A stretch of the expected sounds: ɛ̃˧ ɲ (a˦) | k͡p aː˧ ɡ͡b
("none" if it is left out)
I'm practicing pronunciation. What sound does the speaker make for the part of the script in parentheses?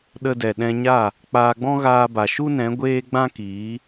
a˦˨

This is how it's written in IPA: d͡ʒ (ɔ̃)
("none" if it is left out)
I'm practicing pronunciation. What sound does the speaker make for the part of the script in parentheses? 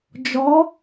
ɔ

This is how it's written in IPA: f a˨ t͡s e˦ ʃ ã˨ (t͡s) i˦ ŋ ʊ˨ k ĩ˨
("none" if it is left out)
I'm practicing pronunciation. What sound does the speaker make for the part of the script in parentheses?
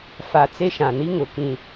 n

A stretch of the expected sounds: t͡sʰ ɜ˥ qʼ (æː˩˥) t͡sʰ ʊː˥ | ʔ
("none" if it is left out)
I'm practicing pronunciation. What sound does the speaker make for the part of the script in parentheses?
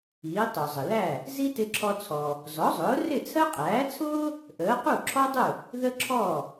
æː˩˥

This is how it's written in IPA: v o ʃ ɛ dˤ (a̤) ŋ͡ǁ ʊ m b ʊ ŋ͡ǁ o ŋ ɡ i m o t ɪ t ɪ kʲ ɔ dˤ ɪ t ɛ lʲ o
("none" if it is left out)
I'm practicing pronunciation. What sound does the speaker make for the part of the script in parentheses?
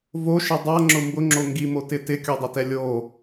a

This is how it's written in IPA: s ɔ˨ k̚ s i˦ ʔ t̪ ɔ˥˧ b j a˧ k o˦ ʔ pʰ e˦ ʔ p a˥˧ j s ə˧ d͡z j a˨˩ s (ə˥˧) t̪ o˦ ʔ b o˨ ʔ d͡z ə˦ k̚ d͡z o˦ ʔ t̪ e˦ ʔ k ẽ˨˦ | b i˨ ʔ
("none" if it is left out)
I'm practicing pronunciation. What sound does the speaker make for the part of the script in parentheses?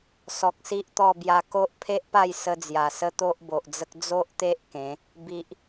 ə˦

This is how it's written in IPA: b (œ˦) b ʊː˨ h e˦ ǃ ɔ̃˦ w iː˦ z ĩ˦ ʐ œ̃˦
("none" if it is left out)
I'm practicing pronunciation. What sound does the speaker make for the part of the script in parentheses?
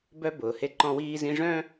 œ˦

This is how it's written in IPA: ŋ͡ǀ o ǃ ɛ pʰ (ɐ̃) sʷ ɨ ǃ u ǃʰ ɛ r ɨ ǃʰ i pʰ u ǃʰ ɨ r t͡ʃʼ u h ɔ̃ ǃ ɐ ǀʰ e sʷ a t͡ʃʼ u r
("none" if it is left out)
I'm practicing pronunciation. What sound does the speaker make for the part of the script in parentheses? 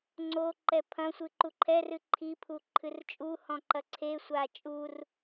ɐ̃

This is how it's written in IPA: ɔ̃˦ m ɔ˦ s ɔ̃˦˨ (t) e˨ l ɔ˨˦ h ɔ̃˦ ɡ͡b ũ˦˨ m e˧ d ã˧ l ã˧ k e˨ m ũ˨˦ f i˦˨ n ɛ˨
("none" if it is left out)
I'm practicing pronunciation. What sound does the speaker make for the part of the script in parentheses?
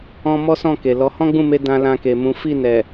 k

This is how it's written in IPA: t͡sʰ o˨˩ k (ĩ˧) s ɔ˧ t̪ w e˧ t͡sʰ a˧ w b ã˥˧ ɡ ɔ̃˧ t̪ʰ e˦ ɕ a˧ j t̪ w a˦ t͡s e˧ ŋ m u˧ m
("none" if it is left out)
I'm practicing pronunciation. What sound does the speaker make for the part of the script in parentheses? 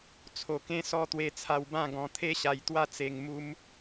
ẽ˧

